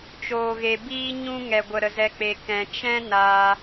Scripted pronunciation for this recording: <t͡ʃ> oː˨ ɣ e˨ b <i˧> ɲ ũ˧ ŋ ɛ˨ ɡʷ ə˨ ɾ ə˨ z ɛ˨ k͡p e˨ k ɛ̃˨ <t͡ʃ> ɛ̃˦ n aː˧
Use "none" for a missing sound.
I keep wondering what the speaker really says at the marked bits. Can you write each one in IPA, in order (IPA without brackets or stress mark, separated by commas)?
t͡ʃ, iː˧, t͡ʃ